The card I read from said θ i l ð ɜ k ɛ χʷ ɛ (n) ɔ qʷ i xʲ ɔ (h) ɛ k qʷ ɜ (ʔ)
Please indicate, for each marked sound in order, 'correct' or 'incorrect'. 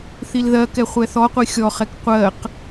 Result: incorrect: θ, incorrect: χ, incorrect: q

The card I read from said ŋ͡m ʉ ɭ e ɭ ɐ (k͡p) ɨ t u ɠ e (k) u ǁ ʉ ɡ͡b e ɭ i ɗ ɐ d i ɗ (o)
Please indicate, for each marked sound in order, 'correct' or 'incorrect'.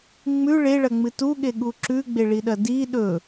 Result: incorrect: ŋ͡m, incorrect: ɠ, incorrect: ɵ

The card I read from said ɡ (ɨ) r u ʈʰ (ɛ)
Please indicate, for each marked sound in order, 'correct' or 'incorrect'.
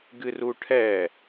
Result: correct, correct

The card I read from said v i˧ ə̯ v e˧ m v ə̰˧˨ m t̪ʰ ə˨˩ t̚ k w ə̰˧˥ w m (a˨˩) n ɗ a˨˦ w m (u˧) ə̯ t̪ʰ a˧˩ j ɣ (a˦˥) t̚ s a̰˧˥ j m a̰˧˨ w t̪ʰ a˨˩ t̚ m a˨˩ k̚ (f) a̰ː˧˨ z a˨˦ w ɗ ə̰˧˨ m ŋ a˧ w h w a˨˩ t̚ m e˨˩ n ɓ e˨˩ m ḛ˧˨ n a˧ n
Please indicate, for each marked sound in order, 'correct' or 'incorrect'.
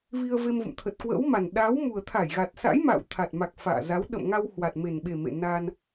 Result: correct, incorrect: u˨˩, incorrect: a˨˩, correct

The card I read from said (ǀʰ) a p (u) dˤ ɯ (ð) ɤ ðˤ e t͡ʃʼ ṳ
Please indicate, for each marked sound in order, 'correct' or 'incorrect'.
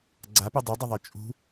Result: incorrect: ɡ͡ǀ, correct, incorrect: dˤ

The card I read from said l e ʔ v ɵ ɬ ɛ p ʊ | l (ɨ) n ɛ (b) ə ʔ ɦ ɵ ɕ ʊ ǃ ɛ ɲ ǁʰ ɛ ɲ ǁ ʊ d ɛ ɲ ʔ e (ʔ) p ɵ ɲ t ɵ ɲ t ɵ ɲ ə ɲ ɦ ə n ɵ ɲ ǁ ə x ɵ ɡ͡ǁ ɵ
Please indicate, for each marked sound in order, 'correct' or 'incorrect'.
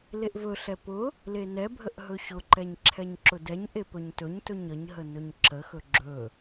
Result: incorrect: e, incorrect: bʱ, incorrect: none

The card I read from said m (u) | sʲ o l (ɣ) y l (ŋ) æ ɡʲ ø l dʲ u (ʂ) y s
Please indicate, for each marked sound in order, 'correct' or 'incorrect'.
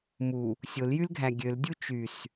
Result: correct, incorrect: j, incorrect: ɡʱ, incorrect: t͡ʃ

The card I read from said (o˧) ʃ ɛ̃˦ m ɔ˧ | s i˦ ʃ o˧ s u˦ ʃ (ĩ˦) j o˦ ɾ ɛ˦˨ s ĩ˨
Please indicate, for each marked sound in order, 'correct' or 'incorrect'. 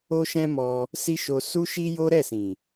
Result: incorrect: o˦, incorrect: i˦

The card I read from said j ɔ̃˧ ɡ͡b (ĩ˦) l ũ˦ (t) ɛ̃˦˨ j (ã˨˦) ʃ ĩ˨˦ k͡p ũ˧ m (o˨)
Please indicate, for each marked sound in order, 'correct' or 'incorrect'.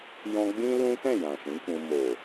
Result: correct, correct, incorrect: ã˨, correct

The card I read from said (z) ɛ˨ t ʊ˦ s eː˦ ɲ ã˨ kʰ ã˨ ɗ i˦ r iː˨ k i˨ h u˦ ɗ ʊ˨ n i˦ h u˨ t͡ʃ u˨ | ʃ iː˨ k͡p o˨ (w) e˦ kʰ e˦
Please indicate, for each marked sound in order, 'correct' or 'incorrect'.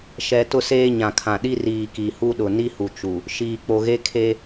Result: incorrect: ʃ, incorrect: ɣ

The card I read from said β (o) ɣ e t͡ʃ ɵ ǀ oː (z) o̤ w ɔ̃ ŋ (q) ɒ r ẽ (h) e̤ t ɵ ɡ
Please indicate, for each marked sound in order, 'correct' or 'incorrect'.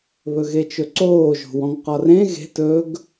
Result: incorrect: ɵ, incorrect: ʒ, correct, incorrect: ɣ

